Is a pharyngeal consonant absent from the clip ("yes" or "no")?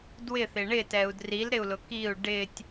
yes